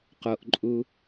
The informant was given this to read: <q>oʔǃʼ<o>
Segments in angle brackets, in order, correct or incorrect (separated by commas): correct, incorrect